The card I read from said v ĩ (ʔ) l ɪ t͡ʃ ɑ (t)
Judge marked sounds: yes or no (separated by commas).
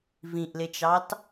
yes, yes